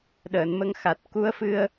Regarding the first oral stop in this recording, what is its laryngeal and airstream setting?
implosive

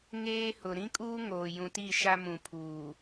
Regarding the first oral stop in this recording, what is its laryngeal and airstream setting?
ejective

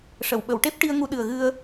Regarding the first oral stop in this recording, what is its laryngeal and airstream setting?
implosive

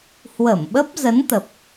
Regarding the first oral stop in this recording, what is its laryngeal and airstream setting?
implosive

